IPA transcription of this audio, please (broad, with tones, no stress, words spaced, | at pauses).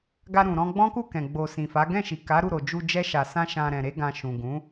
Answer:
ɡa˧ ɾũ˨ ɾɔ̃˧ɡ͡bɔ̃˦ku˦˨ kɛ̃˨ɡ͡bo˨ sĩ˨fa˨˦ ɡɛ̃˦˨ʃi˨ ka˨˦ ɾu˦˨ɾo˨d͡ʒu˧ d͡ʒɛ˧ʃa˨ sã˧ʃã˨ ɾɛ̃˨ ɾe˧ɡã˨ ʃũ˨ ɡũ˨˦